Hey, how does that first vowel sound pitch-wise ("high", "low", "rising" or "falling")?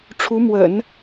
rising